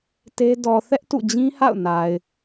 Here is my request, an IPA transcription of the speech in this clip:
t e˦ d ɔ˨ θ ɛ˦ ʔ t ṵ˦˨ d͡ʑ ĩ˦ h a̰˦˨ ʊ̯ n a˨ ɪ̯

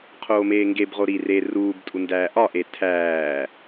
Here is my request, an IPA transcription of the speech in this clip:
qʰ oː m eː ŋ ɡ e b ʁ o ɾ i r e r uː b tʼ u n d æː ʔ ɒ ʔ e tʰ æː

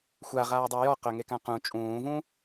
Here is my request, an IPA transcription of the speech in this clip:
xʷ a ʁ aː dˤ u j ɔ q œ ŋ e k ã q ũ t͡ʃʼ ũː v ũ

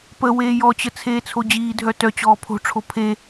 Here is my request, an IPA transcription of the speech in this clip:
p ə w eː j ɔ t͡ɕ ə t͡sʰ eː t͡sʰ o d͡ʑ iː dʱ œ t œ t͡ɕ ɔː pʰ o̤ ʈ͡ʂʰ o pʰ e

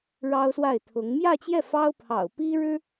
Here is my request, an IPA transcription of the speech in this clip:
ɻ ɑ˥ ʊ̯ s w a˥˩ ɪ̯ t̪ʰ ʊ˧˥ ŋ m j ä˥˧ t͡ɕ j ɛ˥˩ f ɑ˥ ʊ̯ pʰ ɑ̰˨˩ ʊ̯ p i˥ ɻ ɻ̩˥

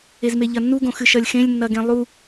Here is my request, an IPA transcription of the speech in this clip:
e z m e ʎ ɐ nː u ɡ õ x ɨ ʃ ɐ lʲ x ẽ lʲ nː ɐ ɡ ẽ lˠ u

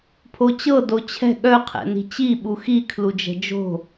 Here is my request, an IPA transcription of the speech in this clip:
pʰ o t͡ɕ ɤ d o t͡ɕʰ ɛ̤ ɠ œ qʰ ɛ̰ n i̤ t͡ɕ i ɓ u x i kʰ l u d͡ʒ ɛ̤ d͡ʒ o̤

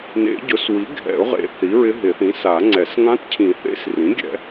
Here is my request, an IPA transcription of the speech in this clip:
n ḛ˨˩˦ ɟ ʊ˩˥ s w i˩˥ ɡʱ ɛ̰˨˩˦ ʊ̯ ʁ ḛ˨˩˦ θ i˩˥ ɹ ɪ˧˥ ɦ ɪ˨˩˦ θ ĩ˩˥ s a˨˩˦ ŋ͡ǀ ɛ˨˩˦ s ŋ ã˧˥ t cʰ ĩ˨˩˦ θ ḛ˧˥ s r ĩ˩˥ ɡʲ ɛ̰˨˩˦

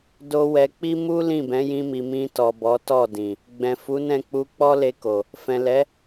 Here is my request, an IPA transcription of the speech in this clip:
d o˦ w ɛ˧ k͡p i˦ m u˦ l ĩ˦˨ b ɛ̃˨˦ j ĩ˧ m i˨ m ĩ˧ t ɔ˨ b ɔ˨˦ t ɔ˦˨ d ĩ˨ | ɡ͡b ɛ̃˨ f u˨˦ n ɛ̃˦˨ k͡p u˧ k͡p ɔ˦ l e˧ k o˨ | f ɛ̃˨ l ɛ˨˦

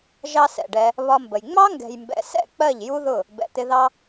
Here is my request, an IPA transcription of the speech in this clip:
ʒ ɑ˦ s ɛ̰˨ ɖ ɛ˧ | β ɒ˧ m b ə˨ j ŋ͡m ɑ˦ ŋ ɡ ɛ̤˨ j m b ɛ̰˨ s ɛ̰˦˨ k͡p ɜ˦˨ ʎ j u˦ ð ʊ˦˨ | b ɛ̰˨ t̪ ɪ˧ ð ɑ˦

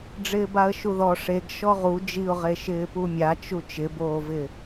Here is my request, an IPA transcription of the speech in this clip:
ɖ͡ʐ ɪː b a ə̯ ʃ u ð ɔ ʂ e ɡ ʃ ɔ ʁ u d͡ʒ i ʊ̯ ʁ e ʃ ɪː p u mʲ a t͡ʃ u t͡ʃ ɪ b oː v ɪ

